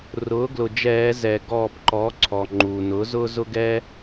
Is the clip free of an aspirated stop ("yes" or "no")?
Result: no